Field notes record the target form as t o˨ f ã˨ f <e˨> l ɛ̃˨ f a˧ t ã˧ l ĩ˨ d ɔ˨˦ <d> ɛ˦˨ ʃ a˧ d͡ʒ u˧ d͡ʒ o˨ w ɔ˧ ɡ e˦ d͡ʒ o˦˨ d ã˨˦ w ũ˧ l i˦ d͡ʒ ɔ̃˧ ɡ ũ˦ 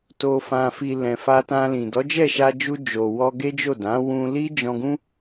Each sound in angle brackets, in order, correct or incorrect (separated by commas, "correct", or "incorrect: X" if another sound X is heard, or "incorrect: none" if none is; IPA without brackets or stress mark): incorrect: i˨, incorrect: d͡ʒ